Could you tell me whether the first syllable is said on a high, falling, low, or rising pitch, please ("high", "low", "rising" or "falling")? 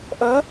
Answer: rising